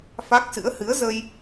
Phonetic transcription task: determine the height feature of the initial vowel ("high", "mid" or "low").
low